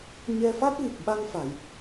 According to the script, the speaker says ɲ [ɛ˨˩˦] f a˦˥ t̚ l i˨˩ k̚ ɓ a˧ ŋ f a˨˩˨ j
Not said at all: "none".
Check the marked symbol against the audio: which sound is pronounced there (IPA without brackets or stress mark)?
ɛ˧